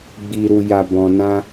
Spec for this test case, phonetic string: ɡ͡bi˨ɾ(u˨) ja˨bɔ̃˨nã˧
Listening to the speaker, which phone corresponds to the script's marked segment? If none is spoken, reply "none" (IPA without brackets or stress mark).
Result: u˨